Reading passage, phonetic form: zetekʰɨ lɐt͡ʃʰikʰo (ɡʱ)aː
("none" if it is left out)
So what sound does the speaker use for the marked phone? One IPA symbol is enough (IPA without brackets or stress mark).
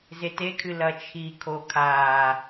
kʰ